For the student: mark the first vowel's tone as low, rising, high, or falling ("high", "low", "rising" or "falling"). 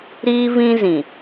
high